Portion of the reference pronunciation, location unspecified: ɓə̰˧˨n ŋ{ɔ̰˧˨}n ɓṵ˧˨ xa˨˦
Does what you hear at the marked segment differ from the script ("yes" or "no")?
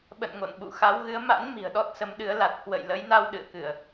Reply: yes